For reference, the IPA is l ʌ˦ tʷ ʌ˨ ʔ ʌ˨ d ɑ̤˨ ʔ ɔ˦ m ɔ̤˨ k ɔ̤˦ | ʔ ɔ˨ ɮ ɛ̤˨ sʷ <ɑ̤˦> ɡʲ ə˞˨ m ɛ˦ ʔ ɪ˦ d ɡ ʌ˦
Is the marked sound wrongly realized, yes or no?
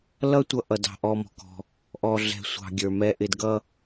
yes